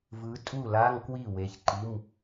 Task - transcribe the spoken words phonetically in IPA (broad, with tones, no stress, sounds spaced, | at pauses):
v ɯ˨˦ tʼ u˥˩ l a˧˥˧ ŋ k w i˥˩ w e˨˦ ç ǃ i˧˥˧ m